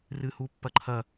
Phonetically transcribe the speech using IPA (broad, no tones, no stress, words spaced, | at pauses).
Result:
rɨhupːɐǃʰɐ